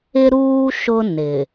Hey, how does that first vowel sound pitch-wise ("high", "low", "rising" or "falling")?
high